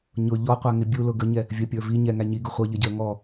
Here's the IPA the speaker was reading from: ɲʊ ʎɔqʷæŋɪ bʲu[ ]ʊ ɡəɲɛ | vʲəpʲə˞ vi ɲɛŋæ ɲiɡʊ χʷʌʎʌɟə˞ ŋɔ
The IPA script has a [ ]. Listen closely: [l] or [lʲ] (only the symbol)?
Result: l